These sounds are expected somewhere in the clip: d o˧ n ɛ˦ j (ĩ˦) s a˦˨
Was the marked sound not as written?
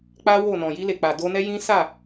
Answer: no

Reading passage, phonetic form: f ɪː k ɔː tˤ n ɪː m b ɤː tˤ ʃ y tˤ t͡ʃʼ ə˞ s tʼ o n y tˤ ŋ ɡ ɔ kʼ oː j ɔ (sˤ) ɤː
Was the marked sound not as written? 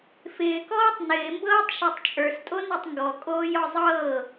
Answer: yes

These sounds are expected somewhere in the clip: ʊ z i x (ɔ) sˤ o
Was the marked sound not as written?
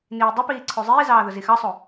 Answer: yes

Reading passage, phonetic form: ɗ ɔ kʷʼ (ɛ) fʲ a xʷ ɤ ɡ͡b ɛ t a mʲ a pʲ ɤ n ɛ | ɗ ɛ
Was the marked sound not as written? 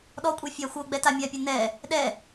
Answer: no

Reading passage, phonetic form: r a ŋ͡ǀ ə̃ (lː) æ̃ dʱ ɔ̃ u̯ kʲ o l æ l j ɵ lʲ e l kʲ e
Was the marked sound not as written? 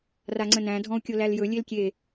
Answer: yes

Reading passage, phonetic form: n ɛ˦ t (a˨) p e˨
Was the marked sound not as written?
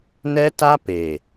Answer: yes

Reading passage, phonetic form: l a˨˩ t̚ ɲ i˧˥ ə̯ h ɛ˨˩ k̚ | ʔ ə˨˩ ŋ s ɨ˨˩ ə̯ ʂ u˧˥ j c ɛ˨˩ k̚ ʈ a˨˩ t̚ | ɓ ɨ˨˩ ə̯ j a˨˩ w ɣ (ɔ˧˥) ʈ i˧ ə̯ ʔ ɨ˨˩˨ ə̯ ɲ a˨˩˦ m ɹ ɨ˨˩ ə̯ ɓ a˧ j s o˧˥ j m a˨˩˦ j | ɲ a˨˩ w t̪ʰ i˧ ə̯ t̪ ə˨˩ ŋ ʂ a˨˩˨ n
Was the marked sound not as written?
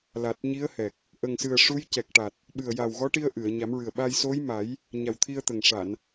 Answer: no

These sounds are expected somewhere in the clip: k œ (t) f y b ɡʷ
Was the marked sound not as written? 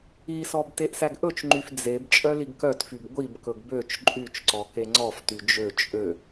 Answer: no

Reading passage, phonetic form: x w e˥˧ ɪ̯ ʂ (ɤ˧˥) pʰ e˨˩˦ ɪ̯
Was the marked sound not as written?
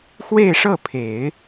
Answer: yes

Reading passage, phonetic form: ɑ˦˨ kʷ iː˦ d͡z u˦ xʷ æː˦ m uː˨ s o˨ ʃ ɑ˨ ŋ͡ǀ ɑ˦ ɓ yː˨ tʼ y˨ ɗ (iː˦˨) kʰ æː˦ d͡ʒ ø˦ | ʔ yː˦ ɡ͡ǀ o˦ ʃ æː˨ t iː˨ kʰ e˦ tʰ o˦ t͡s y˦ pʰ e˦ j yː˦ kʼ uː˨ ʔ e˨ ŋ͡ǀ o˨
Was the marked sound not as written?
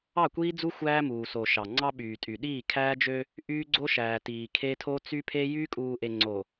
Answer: no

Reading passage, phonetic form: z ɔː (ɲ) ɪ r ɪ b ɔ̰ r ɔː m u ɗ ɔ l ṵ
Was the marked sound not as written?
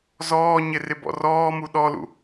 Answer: no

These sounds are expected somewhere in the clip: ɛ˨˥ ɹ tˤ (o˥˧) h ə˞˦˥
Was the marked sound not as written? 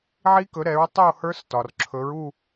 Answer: no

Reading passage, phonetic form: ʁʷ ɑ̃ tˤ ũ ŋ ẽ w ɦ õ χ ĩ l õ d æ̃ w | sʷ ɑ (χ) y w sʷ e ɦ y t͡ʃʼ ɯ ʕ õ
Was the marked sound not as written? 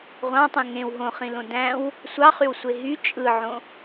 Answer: no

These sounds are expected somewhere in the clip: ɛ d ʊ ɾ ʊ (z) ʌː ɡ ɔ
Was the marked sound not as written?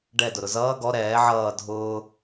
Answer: no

